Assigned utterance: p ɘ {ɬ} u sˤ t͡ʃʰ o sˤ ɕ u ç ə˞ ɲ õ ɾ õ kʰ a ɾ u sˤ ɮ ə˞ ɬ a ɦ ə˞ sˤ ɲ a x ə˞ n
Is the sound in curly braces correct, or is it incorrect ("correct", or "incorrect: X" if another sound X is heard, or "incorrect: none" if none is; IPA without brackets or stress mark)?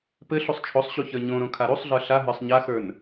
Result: correct